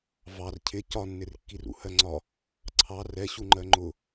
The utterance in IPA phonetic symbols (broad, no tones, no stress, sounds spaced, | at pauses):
v ɑ r cʰ ɪ c ɒ nː ɪ r kː i r ṵ h ɜ ŋ͡ǀ ɒ | ǀʰ ɑ r ɛ ɕ u ŋ͡ǃ ɜ ŋ͡ǃ ʊ